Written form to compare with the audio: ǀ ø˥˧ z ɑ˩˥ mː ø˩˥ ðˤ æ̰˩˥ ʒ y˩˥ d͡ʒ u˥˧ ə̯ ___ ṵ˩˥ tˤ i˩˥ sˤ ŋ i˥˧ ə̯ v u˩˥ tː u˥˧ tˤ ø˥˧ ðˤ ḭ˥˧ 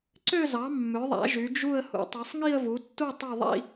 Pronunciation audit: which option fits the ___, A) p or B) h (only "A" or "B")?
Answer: B